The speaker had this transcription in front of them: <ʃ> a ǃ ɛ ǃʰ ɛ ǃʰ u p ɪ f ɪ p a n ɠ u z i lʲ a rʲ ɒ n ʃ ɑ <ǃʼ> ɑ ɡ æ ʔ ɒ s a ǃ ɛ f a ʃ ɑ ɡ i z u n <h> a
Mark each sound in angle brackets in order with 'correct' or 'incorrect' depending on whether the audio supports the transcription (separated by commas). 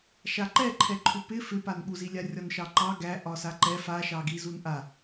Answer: correct, incorrect, incorrect